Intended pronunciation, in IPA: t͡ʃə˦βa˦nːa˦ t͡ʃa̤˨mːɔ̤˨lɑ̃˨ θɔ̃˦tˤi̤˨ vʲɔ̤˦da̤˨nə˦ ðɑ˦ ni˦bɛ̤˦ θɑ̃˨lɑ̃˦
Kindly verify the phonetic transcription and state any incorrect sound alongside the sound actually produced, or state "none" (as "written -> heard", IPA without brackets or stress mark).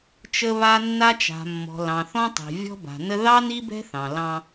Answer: d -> b